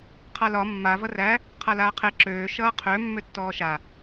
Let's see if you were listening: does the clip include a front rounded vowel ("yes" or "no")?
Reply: yes